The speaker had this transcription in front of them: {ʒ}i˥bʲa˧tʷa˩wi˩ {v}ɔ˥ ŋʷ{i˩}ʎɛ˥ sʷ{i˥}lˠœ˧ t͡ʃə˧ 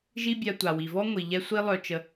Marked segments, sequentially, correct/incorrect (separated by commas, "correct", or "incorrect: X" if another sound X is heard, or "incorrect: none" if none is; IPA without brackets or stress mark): correct, correct, correct, correct